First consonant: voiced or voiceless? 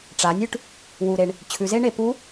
voiceless